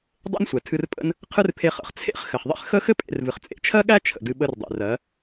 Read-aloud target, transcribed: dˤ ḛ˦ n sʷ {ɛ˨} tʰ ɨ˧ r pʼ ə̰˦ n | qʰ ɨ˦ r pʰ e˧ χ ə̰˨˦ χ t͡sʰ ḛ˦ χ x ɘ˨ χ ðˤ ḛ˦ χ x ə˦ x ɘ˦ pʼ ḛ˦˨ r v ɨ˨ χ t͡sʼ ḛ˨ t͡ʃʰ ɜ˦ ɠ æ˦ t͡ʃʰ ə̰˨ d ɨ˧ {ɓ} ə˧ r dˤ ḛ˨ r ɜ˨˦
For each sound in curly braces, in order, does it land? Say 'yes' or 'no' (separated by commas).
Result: yes, yes